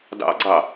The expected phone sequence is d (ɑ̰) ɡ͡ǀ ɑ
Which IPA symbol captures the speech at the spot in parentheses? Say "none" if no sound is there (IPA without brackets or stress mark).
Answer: ɑ̰